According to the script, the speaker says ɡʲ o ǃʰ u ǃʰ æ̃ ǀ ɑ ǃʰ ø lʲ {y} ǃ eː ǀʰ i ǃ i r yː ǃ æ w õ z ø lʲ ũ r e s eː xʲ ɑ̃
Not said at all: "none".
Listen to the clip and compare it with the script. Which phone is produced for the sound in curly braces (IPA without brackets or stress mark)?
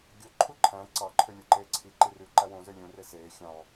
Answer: u